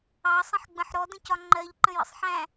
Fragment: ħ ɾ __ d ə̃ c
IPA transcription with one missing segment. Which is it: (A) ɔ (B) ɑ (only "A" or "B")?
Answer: A